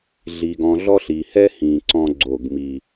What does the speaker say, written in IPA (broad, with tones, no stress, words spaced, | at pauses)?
ɮi˨ɡɔ̃˨ɮɔ˦ɬ i˨hɛ˦hĩ˨ ǀɔ̃˦ɡ͡ǀo˦˨ɡmi˦